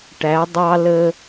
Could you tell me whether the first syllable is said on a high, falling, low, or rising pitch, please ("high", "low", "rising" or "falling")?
rising